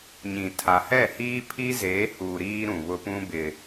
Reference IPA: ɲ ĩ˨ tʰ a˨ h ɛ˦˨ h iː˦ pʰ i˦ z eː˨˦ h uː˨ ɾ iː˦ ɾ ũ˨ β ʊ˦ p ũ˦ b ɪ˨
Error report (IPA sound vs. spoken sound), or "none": none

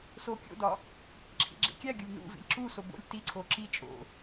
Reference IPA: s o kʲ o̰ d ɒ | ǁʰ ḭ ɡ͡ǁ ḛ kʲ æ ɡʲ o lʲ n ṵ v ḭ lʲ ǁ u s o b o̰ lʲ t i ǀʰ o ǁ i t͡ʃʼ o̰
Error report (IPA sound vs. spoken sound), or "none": none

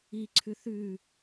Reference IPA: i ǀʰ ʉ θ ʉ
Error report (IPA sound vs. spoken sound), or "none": none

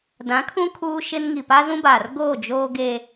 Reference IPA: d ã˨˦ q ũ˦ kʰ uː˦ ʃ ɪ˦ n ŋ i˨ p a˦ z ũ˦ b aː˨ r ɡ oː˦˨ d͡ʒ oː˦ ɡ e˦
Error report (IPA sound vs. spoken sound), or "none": q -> kʰ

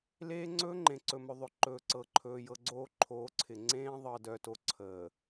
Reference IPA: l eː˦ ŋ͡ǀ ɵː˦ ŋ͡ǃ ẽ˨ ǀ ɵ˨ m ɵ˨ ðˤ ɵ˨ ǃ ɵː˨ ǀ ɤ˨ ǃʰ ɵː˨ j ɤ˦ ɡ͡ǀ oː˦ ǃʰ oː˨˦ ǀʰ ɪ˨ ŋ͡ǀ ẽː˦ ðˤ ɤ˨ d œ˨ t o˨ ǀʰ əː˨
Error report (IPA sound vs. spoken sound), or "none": none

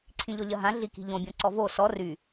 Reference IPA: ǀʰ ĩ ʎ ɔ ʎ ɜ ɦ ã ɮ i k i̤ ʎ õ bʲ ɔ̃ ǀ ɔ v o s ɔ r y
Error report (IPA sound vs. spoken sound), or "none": none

